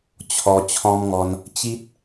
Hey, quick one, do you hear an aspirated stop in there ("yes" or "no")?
yes